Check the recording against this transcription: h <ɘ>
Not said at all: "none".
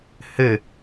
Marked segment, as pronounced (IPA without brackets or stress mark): ɘ